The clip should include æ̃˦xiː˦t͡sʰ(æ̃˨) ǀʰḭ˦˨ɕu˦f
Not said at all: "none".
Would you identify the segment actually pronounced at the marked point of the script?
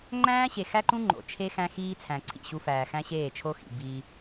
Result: æ̃˨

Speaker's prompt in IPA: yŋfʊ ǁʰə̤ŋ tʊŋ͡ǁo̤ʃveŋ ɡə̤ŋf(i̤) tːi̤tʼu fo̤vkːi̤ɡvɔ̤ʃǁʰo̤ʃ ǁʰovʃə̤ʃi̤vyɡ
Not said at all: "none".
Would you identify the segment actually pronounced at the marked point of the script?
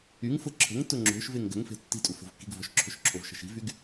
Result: e̤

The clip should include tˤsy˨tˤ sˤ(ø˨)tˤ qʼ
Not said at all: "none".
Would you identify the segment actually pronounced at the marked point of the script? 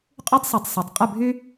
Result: ø˨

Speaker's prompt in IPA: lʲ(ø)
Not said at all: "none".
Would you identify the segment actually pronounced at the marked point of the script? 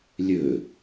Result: ø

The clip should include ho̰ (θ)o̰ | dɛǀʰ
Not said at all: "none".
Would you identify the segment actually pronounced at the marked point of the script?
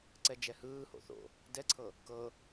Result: θ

